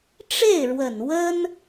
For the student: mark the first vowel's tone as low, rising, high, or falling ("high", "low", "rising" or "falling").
falling